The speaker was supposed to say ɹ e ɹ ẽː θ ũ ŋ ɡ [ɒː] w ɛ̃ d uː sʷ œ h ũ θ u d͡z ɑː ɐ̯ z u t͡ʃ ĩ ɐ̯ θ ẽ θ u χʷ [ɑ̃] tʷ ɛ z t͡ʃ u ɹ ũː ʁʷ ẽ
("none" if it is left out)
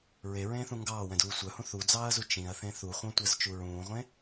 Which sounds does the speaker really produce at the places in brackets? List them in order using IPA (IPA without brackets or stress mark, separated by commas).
ɑː, ɑ̃